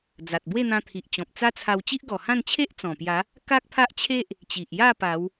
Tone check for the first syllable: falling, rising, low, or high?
low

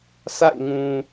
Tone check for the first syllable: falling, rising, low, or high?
falling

